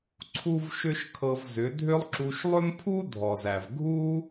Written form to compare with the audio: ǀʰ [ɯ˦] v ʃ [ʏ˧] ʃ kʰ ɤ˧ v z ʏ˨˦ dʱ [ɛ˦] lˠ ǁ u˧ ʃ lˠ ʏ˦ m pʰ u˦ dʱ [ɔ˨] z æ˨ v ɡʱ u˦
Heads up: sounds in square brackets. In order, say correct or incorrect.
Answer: incorrect: u˦, incorrect: ʏ˦, incorrect: ʏ˦, correct

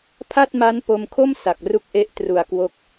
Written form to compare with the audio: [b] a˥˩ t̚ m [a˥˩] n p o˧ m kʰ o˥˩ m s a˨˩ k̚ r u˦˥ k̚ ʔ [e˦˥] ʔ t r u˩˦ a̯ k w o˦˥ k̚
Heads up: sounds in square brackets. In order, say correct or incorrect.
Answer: incorrect: pʰ, incorrect: a˦˥, correct

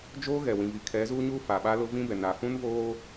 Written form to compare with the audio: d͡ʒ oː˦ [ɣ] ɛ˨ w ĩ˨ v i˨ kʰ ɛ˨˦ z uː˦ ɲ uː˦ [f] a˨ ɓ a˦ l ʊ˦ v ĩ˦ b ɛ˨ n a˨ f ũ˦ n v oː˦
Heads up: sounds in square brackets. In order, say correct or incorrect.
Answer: correct, correct

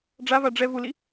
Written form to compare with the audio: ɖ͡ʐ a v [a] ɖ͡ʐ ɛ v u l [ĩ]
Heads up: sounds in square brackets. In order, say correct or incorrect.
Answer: correct, incorrect: i

